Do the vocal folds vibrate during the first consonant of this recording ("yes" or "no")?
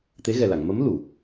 no